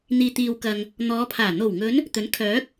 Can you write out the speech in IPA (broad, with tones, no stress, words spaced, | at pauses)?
n̪iː˨t̪iː˨wkɐ˨ŋ | n̪ɔː˨˧pʰaː˨˩ n̪o˨˩wŋɵ˨˧n | t̪ɵ˨˥nkʰœː˨˥k̚